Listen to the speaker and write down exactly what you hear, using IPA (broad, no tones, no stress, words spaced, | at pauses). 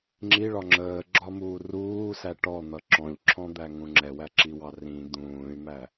ŋ͡ǁiɭɒ ŋ͡ǁəːɡ͡ǁɒmuː ruːsæ ʈɔn̪ʌ ǁɔ̃ʎǁʰɔ̃d̪æŋũ ŋ͡ǁɛwæǁiwɑ rĩ d̪ũːy̯mæ